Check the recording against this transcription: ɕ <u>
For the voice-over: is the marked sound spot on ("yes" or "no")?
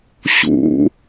no